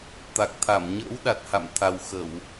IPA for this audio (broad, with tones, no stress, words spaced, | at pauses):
t̪a˨˩k̚t̪ʰa˧˩m ɲə̰ː˧˥wɗa˨˩t̚ ha̰˧˨mt̪ʰa˨˩wxə˧˩˨w